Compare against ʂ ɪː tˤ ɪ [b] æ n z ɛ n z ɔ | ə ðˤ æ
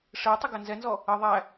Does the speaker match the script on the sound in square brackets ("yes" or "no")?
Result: no